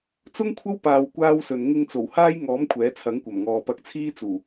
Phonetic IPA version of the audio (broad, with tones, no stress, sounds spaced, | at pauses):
t͡s ʊ˥ ŋ kʷʰ ɐ˥ w p aː˧ w kʷ aː˥ w s ɵ˨ n ŋ ɪ˧ ŋ t͡s o˨˩ w h aː˥ j ŋ ɔː˨˥ m kʷʰ ɛː˨˥ t͡sʰ ɐ˨˥ ŋ kʷ ɐ˨˩ m ŋ ɔː˨ p ɐ˧ k̚ t͡sʰ iː˥ t͡s uː˨˩